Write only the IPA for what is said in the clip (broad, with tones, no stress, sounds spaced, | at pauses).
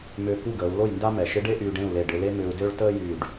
m ʏː˧ k u˥˨ ɡ əː˩˧ u̯ l o˥˨ j n d a˥ m ɛ˩˧ ʃ ɪ˧˥ ɖ e˥ ʔ yː˧ ɖ ẽ˥˨ u̯ l e˧˩ ɖ ɪ˧ l e˥ m ʏː˧ u̯ d ø˥ ɭ t əː˥ j yː˧˩ ɖ